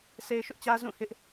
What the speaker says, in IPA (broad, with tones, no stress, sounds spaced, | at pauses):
s e˦ ɪ̯ ʃ ʊ˦ ʔ t͡ɕ ä˦ z ũ˦˨ h ɪ˦ ʔ